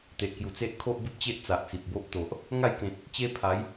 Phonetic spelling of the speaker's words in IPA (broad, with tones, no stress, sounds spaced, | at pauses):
t̪ e˨ ʔ k j u˨˩ t͡s e˦ ʔ kʰ o˦ ʔ b e˦ p̚ t͡ɕ e˦ ʔ t͡s a˨ ʔ t͡s i˨ p̚ b o˦ ʔ t̪ o˨ ʔ | ŋ a˥˧ j k ẽ˨ t̚ | t͡ɕ e˦ pʰ a˨˦ j